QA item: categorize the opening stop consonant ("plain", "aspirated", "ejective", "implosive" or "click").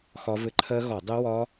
click